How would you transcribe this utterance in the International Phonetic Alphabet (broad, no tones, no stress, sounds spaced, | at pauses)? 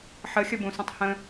ħ ə xʲ ə b ũ s ə̃ tˤ h ə̃